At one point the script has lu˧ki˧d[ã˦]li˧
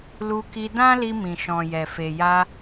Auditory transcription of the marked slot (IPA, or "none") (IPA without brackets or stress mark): ã˦